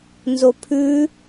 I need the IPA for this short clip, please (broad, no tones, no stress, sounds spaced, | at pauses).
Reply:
n z o pʰ ʉ